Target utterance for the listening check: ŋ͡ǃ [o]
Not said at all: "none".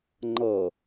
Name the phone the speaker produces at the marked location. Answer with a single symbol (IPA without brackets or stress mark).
ɤ